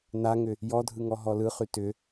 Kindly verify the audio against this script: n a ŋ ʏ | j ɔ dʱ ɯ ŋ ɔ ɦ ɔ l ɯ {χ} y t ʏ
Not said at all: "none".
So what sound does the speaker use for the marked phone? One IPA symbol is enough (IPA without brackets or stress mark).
χ